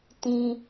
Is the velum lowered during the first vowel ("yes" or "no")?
yes